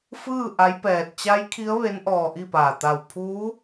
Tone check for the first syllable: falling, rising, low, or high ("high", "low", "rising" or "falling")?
falling